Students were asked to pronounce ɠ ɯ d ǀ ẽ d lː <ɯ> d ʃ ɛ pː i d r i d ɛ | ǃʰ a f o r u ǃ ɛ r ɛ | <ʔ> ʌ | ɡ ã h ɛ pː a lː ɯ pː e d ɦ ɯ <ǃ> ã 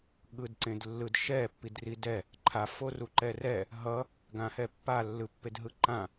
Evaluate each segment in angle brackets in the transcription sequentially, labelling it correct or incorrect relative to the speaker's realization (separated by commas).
correct, incorrect, correct